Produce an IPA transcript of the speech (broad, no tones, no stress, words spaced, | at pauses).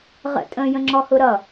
ʁə̰ tʼə̃ jə̃ŋ͡ǁɔhʊɾʌ